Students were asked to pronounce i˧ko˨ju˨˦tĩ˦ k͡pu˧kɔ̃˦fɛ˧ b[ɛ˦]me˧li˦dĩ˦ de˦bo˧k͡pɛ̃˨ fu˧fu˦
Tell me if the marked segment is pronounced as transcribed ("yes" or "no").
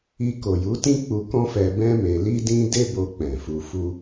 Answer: no